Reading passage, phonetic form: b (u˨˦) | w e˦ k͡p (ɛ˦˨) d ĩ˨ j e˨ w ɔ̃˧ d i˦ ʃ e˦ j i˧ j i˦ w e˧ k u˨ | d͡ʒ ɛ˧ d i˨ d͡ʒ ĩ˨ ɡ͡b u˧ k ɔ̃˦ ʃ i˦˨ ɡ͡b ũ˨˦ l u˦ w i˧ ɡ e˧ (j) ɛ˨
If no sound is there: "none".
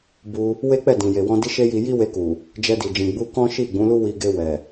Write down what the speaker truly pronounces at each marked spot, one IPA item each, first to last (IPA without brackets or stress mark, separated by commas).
u˧, ɛ˦˨, w